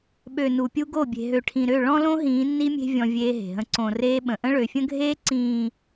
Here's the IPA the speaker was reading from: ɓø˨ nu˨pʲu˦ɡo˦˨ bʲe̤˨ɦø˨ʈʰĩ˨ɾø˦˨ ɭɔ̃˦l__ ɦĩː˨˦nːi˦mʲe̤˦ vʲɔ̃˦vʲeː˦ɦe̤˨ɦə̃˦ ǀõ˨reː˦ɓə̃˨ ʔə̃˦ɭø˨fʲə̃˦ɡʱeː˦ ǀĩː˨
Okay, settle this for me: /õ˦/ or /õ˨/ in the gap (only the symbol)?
õ˦